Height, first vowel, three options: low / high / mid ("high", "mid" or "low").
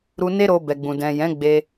high